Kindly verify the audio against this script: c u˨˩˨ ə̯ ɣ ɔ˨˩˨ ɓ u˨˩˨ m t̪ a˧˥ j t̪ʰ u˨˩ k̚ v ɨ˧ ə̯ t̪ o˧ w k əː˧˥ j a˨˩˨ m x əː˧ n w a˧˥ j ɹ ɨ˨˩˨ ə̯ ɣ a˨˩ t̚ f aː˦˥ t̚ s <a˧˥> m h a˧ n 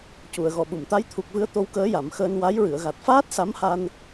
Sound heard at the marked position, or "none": a˧˥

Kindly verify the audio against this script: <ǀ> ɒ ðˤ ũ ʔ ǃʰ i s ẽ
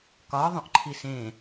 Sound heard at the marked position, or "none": k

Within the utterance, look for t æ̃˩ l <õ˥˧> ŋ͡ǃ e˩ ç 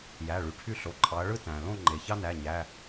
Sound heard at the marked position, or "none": õ˥˧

